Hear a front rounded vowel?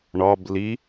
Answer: no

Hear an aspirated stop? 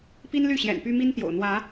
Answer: no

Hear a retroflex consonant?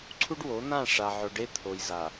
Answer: yes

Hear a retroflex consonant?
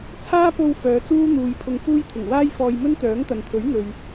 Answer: no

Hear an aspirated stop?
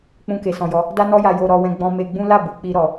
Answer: no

